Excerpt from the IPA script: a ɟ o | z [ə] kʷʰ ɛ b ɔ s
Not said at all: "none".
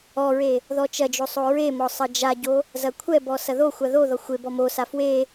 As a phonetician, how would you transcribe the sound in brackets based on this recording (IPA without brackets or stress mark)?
ɐ